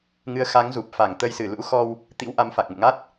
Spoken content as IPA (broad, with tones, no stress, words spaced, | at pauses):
ŋɨ˨˦ə̯xa˨˦ŋzu˨˩p̚ fa˧˩ŋt̪ə˧jsɨ˧˩ lṵ˧˥xɔ˧w | t̪ḭ˧˥w ʔa˨˦mfa˨˩k̚ŋṵ˧˨ŋa˦˥t̚